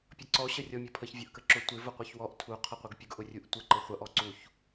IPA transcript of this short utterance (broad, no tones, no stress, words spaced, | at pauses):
pʲʌǀɔ ɕərʲɔmʲɔpʰəç vʲʌʔkəǁʊ tʷɪ vʊqʷʌçwɔʔ tʰu qʰʌqʷɪɡpʲʊɡ ʔʊrʲuʔtʷə ǃɪχʷʌʔ ɔǀuç